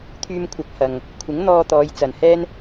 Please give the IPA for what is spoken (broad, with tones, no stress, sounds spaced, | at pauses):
t̪ʰ yː˧ m kʷʰ ɐ˨˥ k̚ h ɐ˨ ŋ | kʷʰ ɪ˨˥ ŋ n̪ ɔː˧ t̪ ɔː˨˧ j t͡s ɐ˨ n h ɛː˥ n